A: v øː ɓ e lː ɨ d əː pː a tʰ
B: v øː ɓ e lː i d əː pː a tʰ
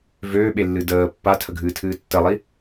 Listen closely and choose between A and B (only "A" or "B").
A